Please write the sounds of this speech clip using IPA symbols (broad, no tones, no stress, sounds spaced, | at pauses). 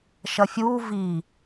ʃ ɐ fʲ uː v i